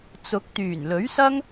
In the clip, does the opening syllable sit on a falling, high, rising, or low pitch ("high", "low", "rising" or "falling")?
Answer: rising